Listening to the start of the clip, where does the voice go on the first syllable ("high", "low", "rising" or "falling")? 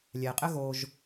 low